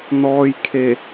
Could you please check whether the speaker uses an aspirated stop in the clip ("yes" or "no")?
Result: yes